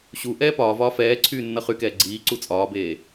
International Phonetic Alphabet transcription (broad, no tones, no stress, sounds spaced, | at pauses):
ɕ u ʔ ɛː p ɒː v ɒː f ɛː ǀʰ yː nː ʌ χ y k ɛː ɡ͡ǀ iː ǀ u t͡sʼ ɒː b eː